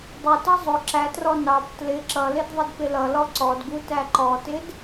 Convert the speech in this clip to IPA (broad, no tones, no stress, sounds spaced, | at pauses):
dˤ ɪ t ʌ zˤ ʊ ǁ æ t r ɔ n ɑ p t l ɪ ǁ ʌ l ɪ d ðˤ ɪ d p ɪ l ʌ l ɔ ǀ ɔ d ɡ u t æ ǃ ɔ t ɪ d